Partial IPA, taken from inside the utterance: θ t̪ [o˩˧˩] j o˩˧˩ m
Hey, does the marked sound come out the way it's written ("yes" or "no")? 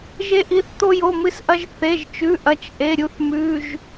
no